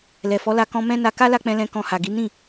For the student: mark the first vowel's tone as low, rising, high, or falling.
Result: low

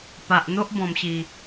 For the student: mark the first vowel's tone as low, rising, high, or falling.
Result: low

